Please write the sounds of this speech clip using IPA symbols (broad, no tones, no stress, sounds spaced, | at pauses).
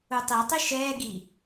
u tˤ i tˤ i ʃ ɛː ɡ i